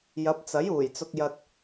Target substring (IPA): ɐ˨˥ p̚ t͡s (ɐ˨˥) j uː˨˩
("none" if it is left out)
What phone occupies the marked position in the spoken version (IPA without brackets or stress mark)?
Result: ɐ˨˥